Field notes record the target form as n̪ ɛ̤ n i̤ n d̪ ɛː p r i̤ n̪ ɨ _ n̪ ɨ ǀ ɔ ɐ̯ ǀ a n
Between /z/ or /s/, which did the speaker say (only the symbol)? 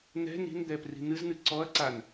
z